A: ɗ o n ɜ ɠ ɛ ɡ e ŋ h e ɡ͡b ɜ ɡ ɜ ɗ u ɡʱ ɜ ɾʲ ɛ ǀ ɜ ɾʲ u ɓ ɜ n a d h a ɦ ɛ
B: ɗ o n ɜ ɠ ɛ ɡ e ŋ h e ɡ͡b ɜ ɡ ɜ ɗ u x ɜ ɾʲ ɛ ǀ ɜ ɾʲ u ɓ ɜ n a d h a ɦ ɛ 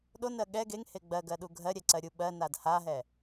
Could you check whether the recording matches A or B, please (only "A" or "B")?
A